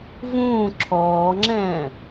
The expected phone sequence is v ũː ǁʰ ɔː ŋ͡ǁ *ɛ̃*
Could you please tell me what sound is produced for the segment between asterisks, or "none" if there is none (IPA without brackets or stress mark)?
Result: ɛ̃ː